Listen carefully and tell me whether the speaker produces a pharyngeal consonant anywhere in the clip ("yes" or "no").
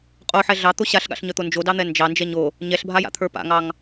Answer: yes